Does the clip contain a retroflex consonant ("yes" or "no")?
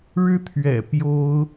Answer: yes